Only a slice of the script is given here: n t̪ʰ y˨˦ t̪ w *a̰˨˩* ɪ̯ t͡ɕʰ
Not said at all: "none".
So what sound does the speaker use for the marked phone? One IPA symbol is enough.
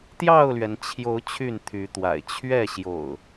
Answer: a̰˨˩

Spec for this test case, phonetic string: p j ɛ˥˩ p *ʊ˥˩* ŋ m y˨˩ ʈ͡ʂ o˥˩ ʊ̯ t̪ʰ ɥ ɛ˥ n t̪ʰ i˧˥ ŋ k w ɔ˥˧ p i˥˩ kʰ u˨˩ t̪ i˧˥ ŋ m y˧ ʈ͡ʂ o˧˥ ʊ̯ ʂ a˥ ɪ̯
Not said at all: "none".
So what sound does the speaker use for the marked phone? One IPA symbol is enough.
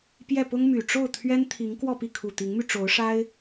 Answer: ʊ˥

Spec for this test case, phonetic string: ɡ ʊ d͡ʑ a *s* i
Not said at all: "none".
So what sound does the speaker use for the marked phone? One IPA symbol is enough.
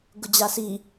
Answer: s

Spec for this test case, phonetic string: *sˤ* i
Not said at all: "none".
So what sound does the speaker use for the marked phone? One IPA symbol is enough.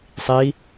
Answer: sˤ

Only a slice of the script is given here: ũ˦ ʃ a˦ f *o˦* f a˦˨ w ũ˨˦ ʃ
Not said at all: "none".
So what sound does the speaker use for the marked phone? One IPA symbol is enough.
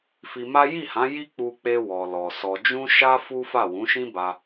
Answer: u˦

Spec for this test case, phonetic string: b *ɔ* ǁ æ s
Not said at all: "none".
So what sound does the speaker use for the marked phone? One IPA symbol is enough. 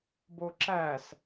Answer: o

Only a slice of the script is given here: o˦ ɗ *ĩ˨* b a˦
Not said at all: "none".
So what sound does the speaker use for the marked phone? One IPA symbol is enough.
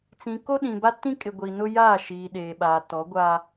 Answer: ĩ˨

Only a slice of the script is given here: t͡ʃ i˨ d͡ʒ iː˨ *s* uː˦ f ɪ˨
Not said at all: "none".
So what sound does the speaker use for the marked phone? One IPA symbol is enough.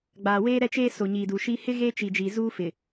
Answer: z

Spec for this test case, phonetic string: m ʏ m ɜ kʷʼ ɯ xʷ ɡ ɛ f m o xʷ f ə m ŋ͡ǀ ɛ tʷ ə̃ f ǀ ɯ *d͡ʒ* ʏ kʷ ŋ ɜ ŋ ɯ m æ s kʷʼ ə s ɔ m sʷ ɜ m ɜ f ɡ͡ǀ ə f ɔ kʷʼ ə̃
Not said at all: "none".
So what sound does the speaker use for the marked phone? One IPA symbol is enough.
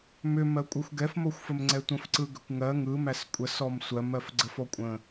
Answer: ɡ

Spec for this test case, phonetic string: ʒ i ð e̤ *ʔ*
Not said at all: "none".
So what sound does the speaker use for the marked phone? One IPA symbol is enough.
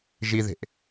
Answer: ʔ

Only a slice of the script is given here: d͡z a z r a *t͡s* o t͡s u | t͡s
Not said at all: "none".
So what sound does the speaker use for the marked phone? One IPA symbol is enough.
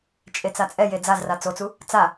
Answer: t͡s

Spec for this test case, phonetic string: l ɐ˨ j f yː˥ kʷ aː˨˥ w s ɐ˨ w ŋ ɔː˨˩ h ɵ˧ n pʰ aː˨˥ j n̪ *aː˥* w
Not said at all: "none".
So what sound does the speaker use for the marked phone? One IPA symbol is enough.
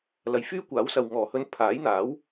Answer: aː˨˥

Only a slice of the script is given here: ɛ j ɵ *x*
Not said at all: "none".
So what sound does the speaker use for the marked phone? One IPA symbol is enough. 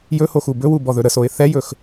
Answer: x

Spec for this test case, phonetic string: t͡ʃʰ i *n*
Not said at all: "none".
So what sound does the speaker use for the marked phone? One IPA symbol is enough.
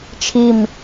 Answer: m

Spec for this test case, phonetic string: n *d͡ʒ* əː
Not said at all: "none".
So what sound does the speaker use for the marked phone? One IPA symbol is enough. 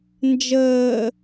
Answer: d͡ʒ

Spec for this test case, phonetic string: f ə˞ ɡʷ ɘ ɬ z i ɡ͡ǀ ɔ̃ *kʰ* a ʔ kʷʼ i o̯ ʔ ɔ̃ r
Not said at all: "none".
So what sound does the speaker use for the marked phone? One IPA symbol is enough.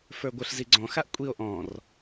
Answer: x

